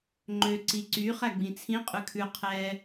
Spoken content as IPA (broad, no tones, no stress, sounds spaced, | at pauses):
ŋ͡ǃ ø ǀ i ǀ y χ æ ɡ͡b ĩ t͡sʰ ĩ qʼ ʉ kʰ ʉ qʰ ɛ